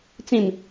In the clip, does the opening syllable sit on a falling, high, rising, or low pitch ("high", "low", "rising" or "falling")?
low